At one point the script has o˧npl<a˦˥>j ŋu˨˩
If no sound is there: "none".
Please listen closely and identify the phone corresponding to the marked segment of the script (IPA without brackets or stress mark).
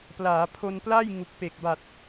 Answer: a˥˩